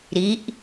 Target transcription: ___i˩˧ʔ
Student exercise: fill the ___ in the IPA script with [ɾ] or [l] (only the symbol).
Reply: ɾ